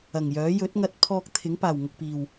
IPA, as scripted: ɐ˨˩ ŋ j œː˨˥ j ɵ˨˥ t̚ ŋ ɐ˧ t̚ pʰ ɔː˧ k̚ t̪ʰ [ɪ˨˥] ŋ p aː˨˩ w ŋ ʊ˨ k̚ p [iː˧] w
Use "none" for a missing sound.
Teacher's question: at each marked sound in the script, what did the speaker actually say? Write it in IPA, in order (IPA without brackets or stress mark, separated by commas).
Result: ɪ˨˥, iː˨˩